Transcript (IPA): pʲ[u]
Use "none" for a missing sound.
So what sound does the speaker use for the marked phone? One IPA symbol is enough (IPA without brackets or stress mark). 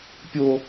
o